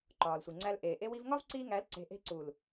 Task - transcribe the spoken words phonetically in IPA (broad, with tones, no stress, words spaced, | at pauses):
ǃɒː˨lsʷi˨ŋ͡ǀæ˧l ʔeː˨ʔe˦wi˦v ŋɒ˦vǀiː˧ŋæ˨˦lǀe̤˨ ʔe̤˧ǀu˨l